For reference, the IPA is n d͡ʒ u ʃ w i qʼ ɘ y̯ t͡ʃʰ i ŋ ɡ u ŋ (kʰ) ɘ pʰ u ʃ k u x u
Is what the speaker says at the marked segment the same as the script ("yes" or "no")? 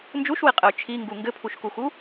no